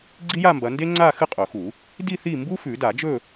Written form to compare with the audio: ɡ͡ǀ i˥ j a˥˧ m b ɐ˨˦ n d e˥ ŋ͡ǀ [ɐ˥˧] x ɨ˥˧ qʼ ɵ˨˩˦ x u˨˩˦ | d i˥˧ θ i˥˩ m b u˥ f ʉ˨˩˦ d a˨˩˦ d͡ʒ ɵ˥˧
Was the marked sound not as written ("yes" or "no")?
yes